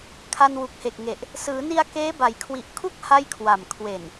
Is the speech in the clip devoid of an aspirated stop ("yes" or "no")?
no